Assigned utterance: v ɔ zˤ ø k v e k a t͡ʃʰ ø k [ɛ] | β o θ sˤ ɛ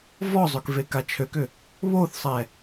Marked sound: incorrect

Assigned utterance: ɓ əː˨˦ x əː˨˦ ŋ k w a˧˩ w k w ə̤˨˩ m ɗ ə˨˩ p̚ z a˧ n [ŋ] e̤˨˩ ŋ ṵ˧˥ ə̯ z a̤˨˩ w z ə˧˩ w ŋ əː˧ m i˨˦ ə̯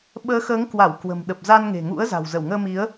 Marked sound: correct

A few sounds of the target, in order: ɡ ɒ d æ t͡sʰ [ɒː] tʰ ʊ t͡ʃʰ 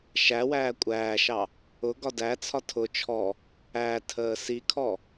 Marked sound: incorrect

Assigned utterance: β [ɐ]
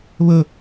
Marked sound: incorrect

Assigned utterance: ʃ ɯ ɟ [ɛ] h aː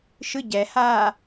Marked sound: correct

